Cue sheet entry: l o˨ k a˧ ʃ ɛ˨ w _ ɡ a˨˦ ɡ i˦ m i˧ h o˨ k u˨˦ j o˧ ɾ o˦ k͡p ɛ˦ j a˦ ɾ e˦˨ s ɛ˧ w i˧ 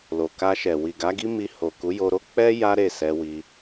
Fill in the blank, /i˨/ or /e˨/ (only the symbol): i˨